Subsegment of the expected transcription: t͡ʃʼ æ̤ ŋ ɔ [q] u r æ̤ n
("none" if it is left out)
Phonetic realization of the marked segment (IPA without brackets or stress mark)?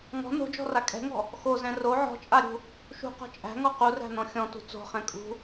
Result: q